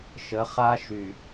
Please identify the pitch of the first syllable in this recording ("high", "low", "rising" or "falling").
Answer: rising